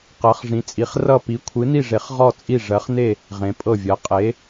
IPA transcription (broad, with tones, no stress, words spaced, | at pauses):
qɜ˨˥χ ʐĩ˨˥t͡sʼi˨˥χ rʌ˥˨ pi˨˥ kʷʰɨ˨˥ni˥˨ʐe˨˥χ ʁɔ˥˨t͡sʼi˥˨ ʐɜ˨˥χne˥˨ | ʁẽ˨˥pʼɤ˥˨vʲɜ˨˥ qʼe˨˥